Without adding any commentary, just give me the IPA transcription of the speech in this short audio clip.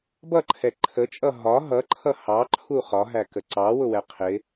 b ʌ ǃʰ ɛ ǃʰ ə t͡ʃʼ ʌ ɦ ɒ ɦ ʌ ǃʰ ʌ h ɑ ǃʰ u χ ɒ ɦ æ k ə ǀ ɑ w ʊ w ɛ qʰ ɪ

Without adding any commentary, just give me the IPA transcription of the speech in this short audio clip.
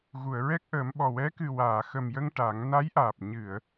ɣ u˨˩˨ ə̯ ɹ ɛ˦˥ k̚ ʔ əː˨˩˦ m ɓ ɔ˨˩ w ɛ˧˥ k ɨ˨˩ w aː˨˩˨ x ə˨˩ m j ə˧ ŋ ʈ a˨˩˦ ŋ n a˧˥ j ʔ aː˨˩ p̚ ɲ ɨ˨˩˨ ə̯

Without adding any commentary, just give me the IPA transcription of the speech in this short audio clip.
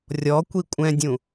rʲ ɔ kʷ i kʷʼ ɛ̃ dʲ ũ

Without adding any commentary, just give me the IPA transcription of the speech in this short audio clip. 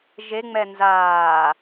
ʒ e ŋ͡m ɛ n z aː

